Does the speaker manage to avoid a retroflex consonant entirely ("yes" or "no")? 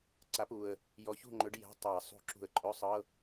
no